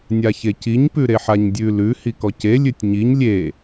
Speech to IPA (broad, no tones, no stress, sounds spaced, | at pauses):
nʲ a ç e c i ɲ p ʉ ɾ e ħ a ɲ dʲ ʉ l ʉ h i k ɔ c e lʲ ʉ tʲ ɲ i ɲ lʲ e